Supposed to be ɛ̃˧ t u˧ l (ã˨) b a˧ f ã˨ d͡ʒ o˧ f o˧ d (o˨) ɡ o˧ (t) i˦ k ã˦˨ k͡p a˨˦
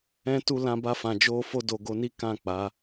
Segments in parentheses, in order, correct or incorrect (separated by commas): incorrect, correct, incorrect